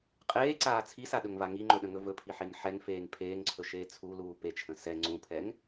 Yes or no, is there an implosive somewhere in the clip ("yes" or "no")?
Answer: yes